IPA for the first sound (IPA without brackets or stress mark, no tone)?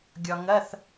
ɡʲ